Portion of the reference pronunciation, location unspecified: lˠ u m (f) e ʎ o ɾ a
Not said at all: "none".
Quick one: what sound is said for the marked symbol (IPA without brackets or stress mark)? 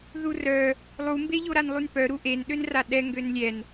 b